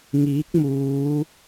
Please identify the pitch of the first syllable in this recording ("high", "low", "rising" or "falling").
rising